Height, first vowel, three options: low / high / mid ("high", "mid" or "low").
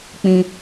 high